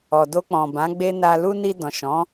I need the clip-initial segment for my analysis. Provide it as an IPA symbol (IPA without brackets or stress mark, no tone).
ɔ